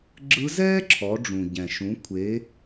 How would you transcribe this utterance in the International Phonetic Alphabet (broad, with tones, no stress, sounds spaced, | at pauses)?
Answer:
ɡ͡ǁ ɯ˧˥ z ɛː˥ ǁʰ ɔ˩˧ ɖ͡ʐ ũ˩ ɟ ɛ̃˩ ʃ ũ˩˧ kʷʰ e˩˧